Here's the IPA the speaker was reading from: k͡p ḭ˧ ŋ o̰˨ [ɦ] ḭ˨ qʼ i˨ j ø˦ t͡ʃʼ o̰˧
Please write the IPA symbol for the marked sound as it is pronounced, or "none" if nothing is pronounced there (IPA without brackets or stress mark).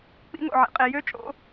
ʕ